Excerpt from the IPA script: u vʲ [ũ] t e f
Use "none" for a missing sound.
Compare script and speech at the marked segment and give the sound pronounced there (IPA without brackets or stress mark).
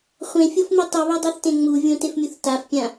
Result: õ